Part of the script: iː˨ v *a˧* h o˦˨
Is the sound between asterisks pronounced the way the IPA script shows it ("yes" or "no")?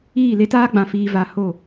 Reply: no